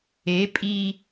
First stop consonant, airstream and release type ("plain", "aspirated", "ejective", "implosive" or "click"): ejective